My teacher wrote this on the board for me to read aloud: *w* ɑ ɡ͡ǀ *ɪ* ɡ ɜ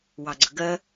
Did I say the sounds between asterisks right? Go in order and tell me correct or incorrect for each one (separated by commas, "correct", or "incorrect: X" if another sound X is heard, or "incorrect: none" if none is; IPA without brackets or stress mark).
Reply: correct, incorrect: ə